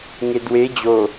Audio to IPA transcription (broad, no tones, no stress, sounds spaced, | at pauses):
ŋ e d w e d͡ʑ o